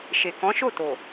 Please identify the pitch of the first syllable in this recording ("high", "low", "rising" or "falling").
low